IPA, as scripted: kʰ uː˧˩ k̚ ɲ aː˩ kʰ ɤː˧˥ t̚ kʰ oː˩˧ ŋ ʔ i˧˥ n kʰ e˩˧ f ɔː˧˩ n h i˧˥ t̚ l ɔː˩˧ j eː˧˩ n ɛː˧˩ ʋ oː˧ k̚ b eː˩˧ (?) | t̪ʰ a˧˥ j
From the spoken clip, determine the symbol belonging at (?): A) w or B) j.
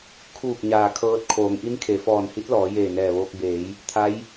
B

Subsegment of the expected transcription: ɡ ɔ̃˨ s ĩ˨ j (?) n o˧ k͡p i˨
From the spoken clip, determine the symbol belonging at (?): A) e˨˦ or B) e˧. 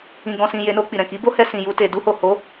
A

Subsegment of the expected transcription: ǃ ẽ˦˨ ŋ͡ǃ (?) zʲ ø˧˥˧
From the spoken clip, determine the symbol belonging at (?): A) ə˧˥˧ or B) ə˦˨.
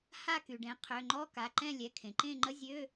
A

